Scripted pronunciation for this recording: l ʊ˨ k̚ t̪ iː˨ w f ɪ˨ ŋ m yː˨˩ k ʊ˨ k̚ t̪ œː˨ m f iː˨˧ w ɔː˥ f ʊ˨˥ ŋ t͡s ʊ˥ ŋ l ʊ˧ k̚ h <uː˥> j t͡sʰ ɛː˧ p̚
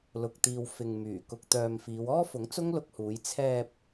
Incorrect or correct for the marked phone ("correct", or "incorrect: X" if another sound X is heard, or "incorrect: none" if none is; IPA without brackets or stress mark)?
incorrect: uː˨˧